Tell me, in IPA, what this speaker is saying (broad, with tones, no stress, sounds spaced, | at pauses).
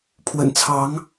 pʰ w ə̰˨˩ n t͡sʰ ɑ˧˥ ŋ